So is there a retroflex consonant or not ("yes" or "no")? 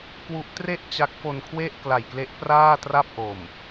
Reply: no